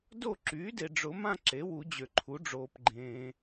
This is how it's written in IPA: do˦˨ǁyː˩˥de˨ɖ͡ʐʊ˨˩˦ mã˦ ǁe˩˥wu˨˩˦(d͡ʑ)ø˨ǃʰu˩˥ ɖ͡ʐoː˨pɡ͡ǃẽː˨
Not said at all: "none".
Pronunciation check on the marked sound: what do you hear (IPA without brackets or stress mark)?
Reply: d͡ʑ